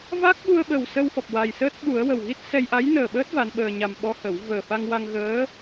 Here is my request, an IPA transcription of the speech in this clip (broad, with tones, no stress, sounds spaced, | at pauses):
v a˦˥ k̚ ɓ u˧ ə̯ ɓ ə˨˩ w s ə˧ w f ɔ˨˩ p̚ w a˨˩ j s əː˦˥ t̚ ɓ u˨˩˦ ə̯ w ə˨˩ w ɣ i˦˥ t̚ s ɛ˧ j ʔ a˧˥ j n əː˨˩ ɓ əː˦˥ t̚ v a˧˥ n ɓ əː˧ ɲ a˧ m ɓ ɔ˧˥ h ə˨˩˦ w v əː˨˩ f a˧ ŋ w a˧ ŋ ɣ əː˧˥